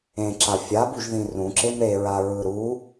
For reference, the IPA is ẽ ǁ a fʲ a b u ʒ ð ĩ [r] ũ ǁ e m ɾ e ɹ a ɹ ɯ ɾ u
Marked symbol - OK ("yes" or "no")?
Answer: yes